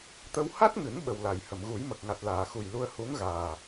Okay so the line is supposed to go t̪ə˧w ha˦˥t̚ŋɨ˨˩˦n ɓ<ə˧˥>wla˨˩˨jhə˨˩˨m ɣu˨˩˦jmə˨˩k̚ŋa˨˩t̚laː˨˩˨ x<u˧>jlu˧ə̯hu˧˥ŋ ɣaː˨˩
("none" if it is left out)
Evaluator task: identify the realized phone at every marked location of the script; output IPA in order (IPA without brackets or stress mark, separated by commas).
ə˨˩, u˨˩